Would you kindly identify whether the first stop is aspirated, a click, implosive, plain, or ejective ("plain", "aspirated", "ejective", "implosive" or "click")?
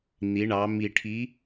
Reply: aspirated